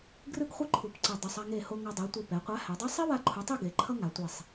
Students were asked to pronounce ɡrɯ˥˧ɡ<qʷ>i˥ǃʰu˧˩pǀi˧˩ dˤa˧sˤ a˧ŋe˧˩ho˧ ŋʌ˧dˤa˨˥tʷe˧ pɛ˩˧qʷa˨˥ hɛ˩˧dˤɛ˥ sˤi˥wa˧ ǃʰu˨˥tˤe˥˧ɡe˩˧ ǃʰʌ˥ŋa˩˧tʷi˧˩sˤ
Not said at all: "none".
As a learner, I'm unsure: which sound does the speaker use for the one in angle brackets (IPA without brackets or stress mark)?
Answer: χʷ